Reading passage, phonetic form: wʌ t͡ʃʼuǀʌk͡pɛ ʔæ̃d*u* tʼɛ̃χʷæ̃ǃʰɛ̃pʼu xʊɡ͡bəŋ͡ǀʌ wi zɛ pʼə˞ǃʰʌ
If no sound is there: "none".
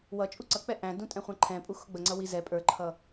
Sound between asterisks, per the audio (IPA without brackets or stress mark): ũ